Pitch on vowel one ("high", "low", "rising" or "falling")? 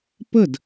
falling